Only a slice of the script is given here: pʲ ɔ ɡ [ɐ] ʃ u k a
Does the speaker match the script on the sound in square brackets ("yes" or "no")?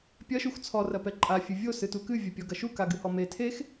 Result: yes